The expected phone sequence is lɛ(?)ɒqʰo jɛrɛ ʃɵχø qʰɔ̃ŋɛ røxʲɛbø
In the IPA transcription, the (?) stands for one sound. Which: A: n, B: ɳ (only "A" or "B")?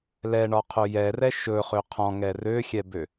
B